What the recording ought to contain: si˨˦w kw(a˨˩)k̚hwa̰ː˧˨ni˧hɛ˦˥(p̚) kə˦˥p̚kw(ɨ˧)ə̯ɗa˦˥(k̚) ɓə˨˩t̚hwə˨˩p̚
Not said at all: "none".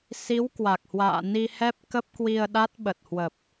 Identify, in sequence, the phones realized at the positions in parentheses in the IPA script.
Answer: a˨˩, p̚, i˧, t̚

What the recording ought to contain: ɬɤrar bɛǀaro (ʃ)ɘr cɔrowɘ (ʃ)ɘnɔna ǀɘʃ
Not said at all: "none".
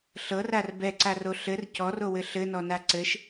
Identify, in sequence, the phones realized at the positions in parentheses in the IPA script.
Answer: ɬ, ɬ

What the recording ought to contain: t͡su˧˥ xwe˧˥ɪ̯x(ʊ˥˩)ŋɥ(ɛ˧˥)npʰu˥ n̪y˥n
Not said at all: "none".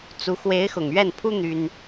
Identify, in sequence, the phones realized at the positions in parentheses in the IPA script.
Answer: ʊ˨˩, ɛ˥˩

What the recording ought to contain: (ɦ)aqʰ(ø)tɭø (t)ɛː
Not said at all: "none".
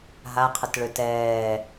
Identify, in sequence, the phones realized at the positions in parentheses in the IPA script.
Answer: ɦ, ə, t

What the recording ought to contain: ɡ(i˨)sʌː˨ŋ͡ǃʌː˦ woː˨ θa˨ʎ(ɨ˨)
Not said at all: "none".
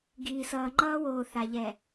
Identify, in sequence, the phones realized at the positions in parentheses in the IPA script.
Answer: iː˨, ɛ˨

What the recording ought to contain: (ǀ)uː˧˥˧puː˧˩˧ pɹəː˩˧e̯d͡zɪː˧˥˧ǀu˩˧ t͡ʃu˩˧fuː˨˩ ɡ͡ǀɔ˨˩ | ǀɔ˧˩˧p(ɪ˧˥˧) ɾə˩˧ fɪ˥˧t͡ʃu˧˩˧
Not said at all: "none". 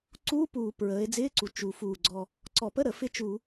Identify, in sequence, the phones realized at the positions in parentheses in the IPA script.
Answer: ǀ, ə˧˥˧

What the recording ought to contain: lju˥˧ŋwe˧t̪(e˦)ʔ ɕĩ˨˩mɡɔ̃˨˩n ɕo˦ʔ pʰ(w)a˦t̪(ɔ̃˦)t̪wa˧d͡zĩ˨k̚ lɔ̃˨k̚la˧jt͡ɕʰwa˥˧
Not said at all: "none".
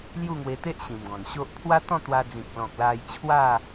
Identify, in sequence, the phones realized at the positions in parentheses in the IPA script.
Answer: e˦, w, ɔ̃˥˧

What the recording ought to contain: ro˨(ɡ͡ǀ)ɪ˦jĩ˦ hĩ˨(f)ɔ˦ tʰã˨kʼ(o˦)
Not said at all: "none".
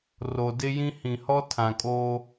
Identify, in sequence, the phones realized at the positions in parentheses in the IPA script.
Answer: d, h, o˦

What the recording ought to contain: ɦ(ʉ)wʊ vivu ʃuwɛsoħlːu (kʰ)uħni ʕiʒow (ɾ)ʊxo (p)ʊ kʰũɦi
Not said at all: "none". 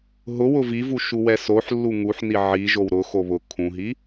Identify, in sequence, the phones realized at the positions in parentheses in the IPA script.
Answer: ʊ, ŋ, ɾ, β

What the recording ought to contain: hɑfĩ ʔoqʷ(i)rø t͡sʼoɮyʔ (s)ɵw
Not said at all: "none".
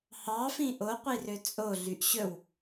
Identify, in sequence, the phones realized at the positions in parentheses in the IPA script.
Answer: i, ɕ

